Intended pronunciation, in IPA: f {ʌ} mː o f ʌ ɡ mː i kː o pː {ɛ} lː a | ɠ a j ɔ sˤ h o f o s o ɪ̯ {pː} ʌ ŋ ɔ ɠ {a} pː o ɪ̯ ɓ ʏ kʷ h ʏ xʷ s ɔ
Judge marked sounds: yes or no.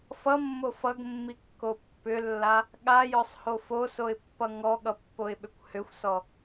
yes, no, yes, no

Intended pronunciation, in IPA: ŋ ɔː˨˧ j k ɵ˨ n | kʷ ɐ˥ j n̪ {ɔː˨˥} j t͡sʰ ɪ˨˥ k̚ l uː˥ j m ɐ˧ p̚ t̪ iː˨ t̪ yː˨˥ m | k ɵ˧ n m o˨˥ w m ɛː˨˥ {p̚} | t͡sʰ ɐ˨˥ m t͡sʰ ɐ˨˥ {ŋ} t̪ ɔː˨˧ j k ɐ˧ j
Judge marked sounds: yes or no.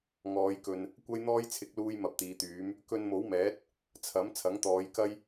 no, no, yes

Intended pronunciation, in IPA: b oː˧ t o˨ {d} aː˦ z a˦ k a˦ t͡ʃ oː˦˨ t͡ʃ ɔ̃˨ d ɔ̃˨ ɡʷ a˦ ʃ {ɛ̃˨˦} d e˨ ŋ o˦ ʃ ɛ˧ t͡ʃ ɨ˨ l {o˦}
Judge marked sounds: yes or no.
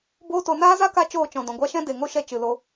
no, no, no

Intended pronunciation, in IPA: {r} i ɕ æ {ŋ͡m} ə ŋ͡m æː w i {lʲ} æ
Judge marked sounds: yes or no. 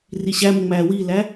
yes, no, no

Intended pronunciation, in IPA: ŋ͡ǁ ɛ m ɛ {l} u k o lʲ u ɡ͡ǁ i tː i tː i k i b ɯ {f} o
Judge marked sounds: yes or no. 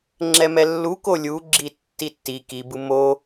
no, no

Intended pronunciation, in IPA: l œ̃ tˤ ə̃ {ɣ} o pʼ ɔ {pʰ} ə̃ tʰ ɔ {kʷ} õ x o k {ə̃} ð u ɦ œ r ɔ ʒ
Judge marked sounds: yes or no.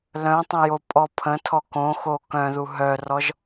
no, yes, no, no

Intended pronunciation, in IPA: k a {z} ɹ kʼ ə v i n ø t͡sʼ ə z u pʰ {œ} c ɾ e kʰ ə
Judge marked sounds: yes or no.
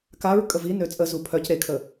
no, yes

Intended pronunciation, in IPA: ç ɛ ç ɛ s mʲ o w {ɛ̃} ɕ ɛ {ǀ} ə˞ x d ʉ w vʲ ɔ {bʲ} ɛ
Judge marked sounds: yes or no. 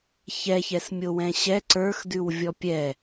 yes, yes, no

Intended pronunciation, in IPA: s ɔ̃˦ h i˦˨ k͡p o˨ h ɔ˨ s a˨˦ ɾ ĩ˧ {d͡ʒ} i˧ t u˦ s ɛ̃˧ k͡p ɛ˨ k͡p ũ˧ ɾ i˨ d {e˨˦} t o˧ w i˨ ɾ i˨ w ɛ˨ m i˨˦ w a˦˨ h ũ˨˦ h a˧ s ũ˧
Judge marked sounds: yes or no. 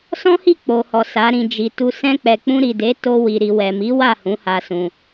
yes, yes

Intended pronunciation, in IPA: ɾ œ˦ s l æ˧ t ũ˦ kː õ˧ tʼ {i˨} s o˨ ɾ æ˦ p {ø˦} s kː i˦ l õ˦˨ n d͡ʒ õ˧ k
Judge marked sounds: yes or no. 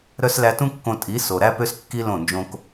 no, yes

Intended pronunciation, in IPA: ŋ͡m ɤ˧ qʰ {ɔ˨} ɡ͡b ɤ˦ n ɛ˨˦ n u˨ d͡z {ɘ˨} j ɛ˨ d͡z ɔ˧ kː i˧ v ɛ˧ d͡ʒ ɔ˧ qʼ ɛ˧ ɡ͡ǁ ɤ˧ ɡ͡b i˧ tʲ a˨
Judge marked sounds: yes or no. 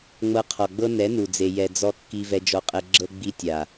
yes, no

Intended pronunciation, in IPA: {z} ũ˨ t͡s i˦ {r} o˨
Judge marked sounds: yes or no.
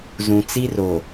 yes, yes

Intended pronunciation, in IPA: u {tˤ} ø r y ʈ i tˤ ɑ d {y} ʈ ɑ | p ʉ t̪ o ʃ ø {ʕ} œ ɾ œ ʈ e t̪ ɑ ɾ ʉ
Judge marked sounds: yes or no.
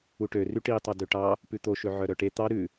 no, no, yes

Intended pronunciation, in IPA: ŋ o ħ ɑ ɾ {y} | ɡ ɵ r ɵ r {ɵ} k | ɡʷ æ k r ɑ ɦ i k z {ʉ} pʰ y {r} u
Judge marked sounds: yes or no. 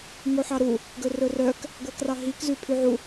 no, no, yes, no

